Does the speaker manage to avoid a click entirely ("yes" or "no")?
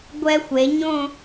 yes